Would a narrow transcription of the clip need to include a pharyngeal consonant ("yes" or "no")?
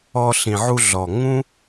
yes